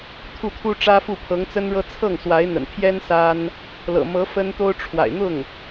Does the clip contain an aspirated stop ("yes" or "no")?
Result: yes